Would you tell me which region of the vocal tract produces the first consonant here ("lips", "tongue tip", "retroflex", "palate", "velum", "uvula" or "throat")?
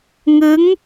velum